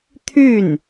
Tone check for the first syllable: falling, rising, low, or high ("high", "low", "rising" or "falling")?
falling